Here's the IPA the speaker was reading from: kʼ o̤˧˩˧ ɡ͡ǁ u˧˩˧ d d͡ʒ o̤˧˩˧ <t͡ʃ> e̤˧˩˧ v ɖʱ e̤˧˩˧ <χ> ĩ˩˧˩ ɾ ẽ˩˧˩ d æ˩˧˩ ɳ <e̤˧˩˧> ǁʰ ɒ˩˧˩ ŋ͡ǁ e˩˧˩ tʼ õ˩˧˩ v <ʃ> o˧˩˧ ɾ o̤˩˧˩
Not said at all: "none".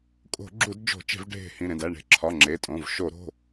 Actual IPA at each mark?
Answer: t͡ʃ, h, e̤˧˩˧, ʃ

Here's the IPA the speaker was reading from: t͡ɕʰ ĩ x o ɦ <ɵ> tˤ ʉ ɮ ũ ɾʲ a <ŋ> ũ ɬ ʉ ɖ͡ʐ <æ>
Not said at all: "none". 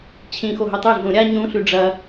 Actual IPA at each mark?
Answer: ɵ, ɲ, ɐ

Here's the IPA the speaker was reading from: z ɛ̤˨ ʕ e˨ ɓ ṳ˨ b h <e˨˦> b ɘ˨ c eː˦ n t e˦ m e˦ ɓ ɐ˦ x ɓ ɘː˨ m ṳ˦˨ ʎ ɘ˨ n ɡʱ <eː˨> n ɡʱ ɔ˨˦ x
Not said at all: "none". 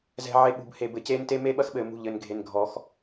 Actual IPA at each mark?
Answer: e˨, e˨

